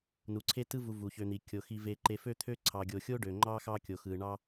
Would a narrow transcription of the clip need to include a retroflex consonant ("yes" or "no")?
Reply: yes